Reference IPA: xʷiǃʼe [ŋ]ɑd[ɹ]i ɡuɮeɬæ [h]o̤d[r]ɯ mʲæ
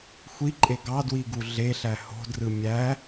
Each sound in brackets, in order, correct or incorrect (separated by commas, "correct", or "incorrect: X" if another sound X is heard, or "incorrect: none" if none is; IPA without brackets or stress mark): incorrect: ɡ, incorrect: w, correct, correct